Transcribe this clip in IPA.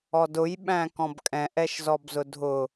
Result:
ɔdʊj ɓæ̃kɔ̃bkʼɛ̃ʔ ɛʃzɔbzʊdʱʊ

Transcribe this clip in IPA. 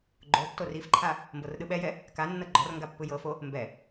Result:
ɡ͡ǃotːor ifǃʰa | mbɤrɗɯɓɛjɛ | kanːɤ ɡ͡ǃɔrŋɡa pːɯjɤfo | mbɛ

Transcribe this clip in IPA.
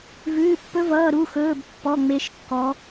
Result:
vʉː˧˥˧pːɵ˦˥vʌː˧˥˧ ɾu˧˥˧xɵː˧˥˧bpːɔ˧˥˧ ŋ͡me˦˥ʃkːɔ˦˥

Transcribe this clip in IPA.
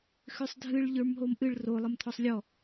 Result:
xʏsˤdʱɨɭ ʎə˞mɦomʔɨɭ ro lˠəmt̪ʰɔsˤlʲɔ

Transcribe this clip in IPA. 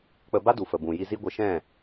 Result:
k͡pə˧ba˦du˨ fə˨bũ˨ji˧zi˦ ɡʷə˧ʃɛ̃˦˨

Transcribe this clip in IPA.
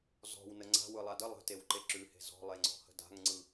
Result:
zɔ̤wnə ŋ͡ǀa̤ wɯlˠadə lˠə̤ tewǃeǁʉhe̤ zɔ̤lˠeŋ͡ǀɔ̤hə̤ da̤ŋŋ͡ǀɯ

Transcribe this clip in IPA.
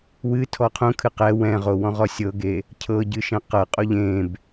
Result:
wɨ tʰɔqʰũ kʰɨqɛ wɛ̃ʁowɔ̃ ʁɔsʲɤɡe | cʰɤɟɨʃɛ̃ qɤ qʼoʎẽb

